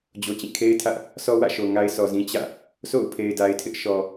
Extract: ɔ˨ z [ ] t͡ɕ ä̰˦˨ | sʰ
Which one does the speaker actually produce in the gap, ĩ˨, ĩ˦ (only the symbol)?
ĩ˦